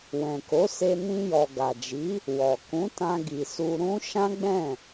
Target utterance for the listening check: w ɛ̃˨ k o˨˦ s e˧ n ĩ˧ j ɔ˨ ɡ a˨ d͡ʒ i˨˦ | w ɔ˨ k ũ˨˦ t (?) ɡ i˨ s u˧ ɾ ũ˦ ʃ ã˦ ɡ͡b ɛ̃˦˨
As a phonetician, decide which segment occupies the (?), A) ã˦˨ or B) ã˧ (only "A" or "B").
B